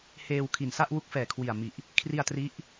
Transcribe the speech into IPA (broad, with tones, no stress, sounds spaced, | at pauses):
h eː˧ w kʰ i˨˩ n s a˥˩ ʔ w u˦˥ k̚ f ɛː˨˩ kʰ w i˨˩ a̯ m i˨˩ ʔ | kʰ r i˧ a̯ t r i˦˥ ʔ